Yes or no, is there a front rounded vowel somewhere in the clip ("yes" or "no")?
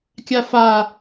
no